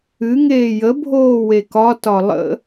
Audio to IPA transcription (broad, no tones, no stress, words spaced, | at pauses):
ɨ ŋeːjə bʱoːwekɒ tɒlˠə̰